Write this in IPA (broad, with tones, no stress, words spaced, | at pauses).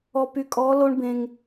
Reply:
ɔ˨py˨kʼɔː˨˦ lo˦ɳ bẽ˦ŋ